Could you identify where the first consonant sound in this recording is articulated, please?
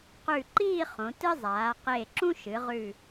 uvular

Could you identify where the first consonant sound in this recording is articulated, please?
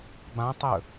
labial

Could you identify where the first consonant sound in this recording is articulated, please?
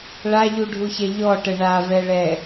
retroflex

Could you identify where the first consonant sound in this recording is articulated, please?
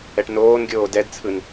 retroflex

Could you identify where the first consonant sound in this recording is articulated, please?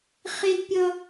uvular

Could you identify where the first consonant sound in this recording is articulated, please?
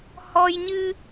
glottal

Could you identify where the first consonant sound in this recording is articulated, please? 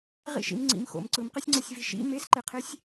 uvular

